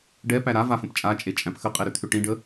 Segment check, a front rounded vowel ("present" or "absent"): present